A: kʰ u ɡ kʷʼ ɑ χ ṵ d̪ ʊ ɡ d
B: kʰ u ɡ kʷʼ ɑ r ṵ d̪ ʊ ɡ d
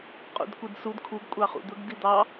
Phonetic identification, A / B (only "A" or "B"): A